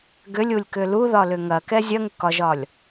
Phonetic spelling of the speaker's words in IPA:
ɡʏlʲulʲkʏ luðɒlʏ ŋɐkɛ zʲɐŋʏkɒʒɒlʲ

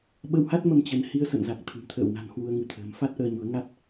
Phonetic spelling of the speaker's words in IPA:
ɓə˧wha˦˥t̚mə˧m t͡ɕə˨˦n hi˧ə̯sə̰˧˨nza˨˩k̚ t̪ʰɨ̤˨˩mt̪ʰə̰ː˧˨wna̤˨˩n hwu˧ə̯ ŋɨ˨˦t̪ʰə̤ː˨˩m fa˦˥t̚ʔəː˧ɲu˨˦ə̯ŋa˦˥t̚

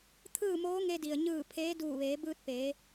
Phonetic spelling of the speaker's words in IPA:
t̪ʰɯː˥˨moː˧˥ŋe˧ di˩ə̯ɲɯː˧˩ pʰeː˧˥ duː˧˩ʋeː˩˧ bɯː˧t̚peː˩˧

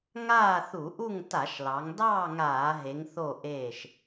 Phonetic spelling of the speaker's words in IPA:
ŋaː˥˨θu˧˩˧ʔu˥˨ŋ ta˧˩˧ʃlɑ˩˧ŋdɑː˥˨ ŋaː˧˩˧ɦe˩˧ŋθo˧˩ ʔeː˧˩ʃ

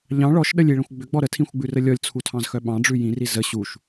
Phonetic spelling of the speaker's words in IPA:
ʎɑ̃ ɭɔʃɗəlʲiɭə̃xʷ ɡ͡bʏɡ͡bɔ ɾətʰĩxʷɡ͡bʉrə lʲɔlʲt͡sʰutʰɑ̃zxœ ɓɑ̃ɖ͡ʐʉ jĩri zə ɕuʃ

